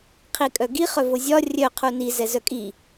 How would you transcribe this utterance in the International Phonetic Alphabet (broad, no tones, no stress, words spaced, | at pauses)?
qʰikʼœɡi χœvozʲɒ rʲœ qʰuni zɛzœkʼi